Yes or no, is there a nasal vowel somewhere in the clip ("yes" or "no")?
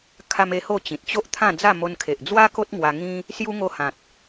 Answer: yes